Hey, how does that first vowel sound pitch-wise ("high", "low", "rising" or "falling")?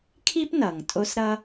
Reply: high